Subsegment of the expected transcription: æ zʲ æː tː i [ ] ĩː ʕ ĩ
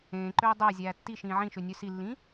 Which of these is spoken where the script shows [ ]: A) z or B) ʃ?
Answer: B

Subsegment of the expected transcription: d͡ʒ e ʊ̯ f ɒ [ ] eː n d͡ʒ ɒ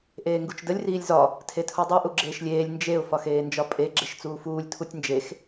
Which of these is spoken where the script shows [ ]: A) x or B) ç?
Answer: A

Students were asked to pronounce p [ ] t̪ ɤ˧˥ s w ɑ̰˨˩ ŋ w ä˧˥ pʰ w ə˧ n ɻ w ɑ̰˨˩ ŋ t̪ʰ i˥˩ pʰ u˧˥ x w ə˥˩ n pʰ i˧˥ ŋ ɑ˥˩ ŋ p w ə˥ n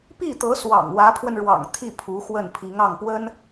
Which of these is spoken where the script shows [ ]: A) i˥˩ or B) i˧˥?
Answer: A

